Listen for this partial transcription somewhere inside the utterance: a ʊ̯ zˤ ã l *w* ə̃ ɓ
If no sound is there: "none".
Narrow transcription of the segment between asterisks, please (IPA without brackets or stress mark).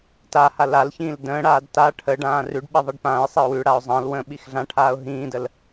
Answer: w